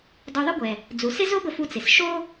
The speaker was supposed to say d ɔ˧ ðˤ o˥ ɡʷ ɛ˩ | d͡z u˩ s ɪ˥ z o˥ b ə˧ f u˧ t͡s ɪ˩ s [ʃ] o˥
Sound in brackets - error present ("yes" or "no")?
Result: no